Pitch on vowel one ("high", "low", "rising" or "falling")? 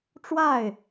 falling